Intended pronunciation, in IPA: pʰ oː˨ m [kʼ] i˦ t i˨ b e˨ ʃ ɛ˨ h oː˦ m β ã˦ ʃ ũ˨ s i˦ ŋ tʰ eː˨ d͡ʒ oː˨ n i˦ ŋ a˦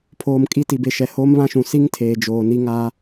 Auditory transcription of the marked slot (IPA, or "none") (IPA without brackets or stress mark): kʼ